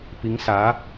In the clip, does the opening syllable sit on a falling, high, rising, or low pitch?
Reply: rising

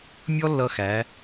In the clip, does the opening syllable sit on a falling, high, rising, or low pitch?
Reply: high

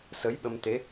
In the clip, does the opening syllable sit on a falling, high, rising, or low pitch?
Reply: rising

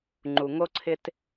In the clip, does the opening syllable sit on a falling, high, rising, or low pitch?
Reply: low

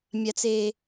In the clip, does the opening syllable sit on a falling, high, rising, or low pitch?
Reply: high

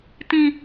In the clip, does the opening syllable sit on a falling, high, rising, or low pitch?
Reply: high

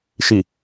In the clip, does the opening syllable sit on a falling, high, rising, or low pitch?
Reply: low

